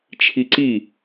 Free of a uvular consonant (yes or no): yes